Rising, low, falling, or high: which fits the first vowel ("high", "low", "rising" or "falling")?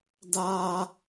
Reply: high